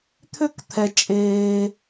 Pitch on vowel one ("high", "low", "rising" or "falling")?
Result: high